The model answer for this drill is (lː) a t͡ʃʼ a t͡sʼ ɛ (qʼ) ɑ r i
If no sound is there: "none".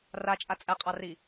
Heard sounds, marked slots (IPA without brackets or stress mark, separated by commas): r, qʼ